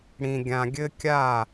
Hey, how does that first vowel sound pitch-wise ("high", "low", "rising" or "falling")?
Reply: low